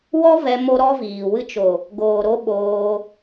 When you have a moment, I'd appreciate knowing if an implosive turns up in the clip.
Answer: yes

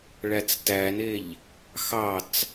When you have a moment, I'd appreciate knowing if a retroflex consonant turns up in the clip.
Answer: yes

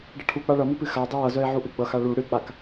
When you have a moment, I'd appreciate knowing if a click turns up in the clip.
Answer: no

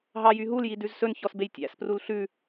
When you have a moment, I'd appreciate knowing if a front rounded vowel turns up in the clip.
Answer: yes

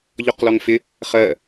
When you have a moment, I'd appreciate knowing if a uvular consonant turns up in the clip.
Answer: yes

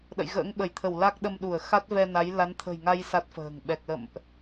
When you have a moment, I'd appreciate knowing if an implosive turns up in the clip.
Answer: yes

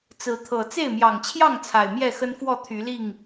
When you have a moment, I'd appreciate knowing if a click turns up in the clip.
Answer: no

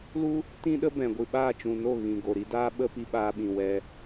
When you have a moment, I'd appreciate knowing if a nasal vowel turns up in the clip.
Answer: yes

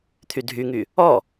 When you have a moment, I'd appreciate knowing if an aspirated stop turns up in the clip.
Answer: yes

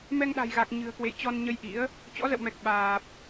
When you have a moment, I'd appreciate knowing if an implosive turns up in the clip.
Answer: yes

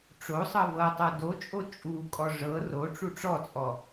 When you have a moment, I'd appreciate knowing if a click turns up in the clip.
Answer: no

